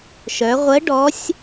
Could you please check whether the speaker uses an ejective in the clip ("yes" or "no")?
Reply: no